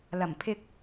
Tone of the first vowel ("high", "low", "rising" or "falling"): low